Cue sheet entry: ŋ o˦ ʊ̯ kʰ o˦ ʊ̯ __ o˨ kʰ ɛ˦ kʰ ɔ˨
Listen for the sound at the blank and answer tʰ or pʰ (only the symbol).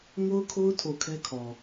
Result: tʰ